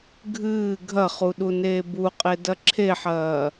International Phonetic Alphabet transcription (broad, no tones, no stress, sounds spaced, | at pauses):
ɡʱ ɨː ɡʱ ɐ χ u ɗ u n eː b u qʼ e d ɐ ǁʰ e ħ ɐː